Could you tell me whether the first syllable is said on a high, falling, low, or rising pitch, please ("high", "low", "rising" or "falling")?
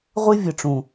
high